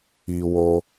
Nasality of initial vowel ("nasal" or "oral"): oral